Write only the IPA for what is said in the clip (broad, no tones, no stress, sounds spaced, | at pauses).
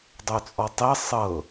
dˤ o t͡sʼ ɔ tˤ e sˤ ɤ